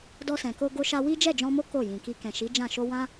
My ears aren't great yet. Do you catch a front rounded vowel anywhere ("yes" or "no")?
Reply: no